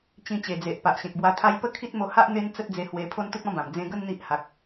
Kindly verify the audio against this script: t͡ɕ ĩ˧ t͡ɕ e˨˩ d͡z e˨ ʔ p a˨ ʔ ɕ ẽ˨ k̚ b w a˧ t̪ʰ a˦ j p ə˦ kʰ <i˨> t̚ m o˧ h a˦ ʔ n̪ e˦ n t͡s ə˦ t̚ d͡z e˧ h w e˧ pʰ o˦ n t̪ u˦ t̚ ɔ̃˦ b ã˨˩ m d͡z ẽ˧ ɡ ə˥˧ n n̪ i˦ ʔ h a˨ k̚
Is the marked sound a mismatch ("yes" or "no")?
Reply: yes